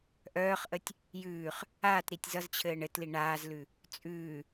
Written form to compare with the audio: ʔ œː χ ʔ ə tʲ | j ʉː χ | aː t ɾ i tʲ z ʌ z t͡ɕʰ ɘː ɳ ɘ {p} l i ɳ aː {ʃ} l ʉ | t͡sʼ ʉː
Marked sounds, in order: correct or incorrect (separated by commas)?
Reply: incorrect, incorrect